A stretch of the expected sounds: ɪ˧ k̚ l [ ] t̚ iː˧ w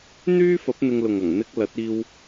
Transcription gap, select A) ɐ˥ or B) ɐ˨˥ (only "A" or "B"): B